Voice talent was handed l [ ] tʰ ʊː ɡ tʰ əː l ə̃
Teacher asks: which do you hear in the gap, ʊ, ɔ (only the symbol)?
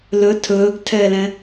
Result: ʊ